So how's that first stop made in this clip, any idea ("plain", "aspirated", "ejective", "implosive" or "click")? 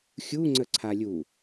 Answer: click